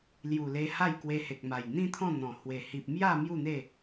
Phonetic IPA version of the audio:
lju˨˩le˧ ha˥˧jkwe˧he˨k̚ma˨˩j n̪ĩ˦t̪ʰɔ̃˥˧ n̪ɔ̃˨˩ hwe˨˩ hi˨p̚mja˥˧ mju˥˧n̪e˥˧

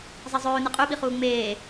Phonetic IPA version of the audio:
zˤɐzˤɵːnɨ qʼʉɓiχuː ŋ͡meː

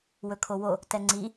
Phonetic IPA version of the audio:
wɵkʰowo | tɛŋ͡ǀi

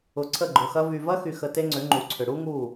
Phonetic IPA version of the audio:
ʊ˨ǀʰə˦˨ɡ͡ǃʊ˨xɐ˦ vy˨vɐ˦xy˨xə˨ te˦ŋ͡ǀʏ˨˦ŋ͡ǃu˨ǀʰʏ˨ ɽu˦ŋu˦˨

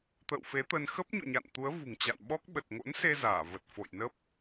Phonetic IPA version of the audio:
t̪ə̰ː˧˨w fe˨˦t̪ə˧n xə˦˥p̚ɲo̰˧˨ɲa̰˧˨nt̪u˨˦ə̯ vṳ˨˩ŋt͡ɕa̰˧˨n ɓɔ˦˥k̚ ɓə˨˩t̚ŋo̰˧˥nse˧ zaː˧˩və˨˩t̚ fo̰˧˨jnə˦˥p̚

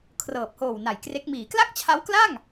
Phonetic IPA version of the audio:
kʰrɤː˨˩p̚hoː˨˩wna˨˩jkre˦˥k̚ miː˩˦kla˥˩k̚t͡ɕʰa˦˥w kla˥˩ŋ

